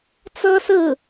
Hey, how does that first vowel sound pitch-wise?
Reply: high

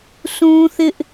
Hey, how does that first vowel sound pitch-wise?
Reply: high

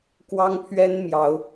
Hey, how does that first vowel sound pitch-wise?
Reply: high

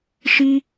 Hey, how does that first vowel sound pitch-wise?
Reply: high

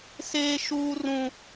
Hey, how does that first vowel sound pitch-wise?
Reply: high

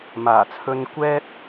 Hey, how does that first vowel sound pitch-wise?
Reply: low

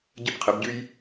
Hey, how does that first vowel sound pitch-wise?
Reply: falling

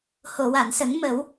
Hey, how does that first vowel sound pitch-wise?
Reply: low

